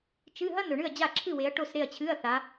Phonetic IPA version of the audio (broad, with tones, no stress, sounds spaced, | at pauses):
t͡ʃ ɨ˧˥˧ ɦ ɐ˥ n ɵ˨ ɳ ɨ˥˨ ɐ̯ d͡ʑ a˥˨ ǁʰ ɨ˥˨ w e˨˦ ɐ̯ ʈ o˥˨ s ɾ e˥˨ ɐ̯ t͡ɕʰ ɨ˧˥˧ ɐ̯ θ a˨˦